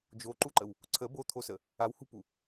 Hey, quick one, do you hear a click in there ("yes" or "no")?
yes